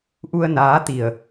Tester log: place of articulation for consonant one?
glottal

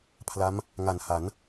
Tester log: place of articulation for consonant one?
labial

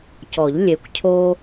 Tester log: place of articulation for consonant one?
palatal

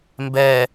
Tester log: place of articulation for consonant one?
labial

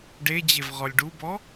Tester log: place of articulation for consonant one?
retroflex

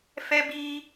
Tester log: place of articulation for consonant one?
labial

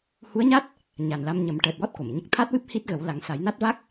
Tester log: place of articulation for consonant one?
glottal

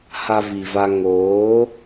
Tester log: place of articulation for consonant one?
glottal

